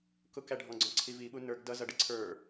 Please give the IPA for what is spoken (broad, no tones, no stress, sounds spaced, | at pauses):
k ʊ k æ ɖʱ ɔ̃ ɡ͡ǀ ɔ̃ ǀʰ i v i ɓ u n ə˞ ɡ d ʌ z ʌ ɖ ɪ ǀʰ ə˞